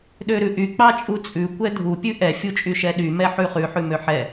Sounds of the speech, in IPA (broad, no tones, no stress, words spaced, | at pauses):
ɗøɾʉʔy k͡pɑt͡ʃʼut͡sʼʉ kʷɛdʱu pʲʉʔɛ fʲut͡ʃʼyʃɛɗy mɛħʉχʉ ħʉmøħɛ